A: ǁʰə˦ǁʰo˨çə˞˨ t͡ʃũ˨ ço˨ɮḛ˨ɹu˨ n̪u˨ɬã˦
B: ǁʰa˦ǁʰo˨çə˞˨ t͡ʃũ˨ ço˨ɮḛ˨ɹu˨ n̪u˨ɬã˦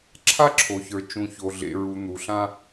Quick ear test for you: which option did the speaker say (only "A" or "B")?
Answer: B